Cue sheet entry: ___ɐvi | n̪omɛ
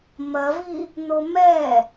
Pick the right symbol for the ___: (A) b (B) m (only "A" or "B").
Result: B